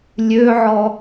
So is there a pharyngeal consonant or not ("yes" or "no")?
yes